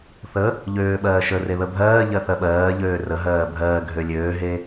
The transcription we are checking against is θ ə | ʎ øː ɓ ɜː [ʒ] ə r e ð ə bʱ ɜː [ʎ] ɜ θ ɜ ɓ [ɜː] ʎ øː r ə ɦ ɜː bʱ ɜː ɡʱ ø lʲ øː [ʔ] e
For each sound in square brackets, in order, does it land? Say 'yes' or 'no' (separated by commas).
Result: no, yes, yes, no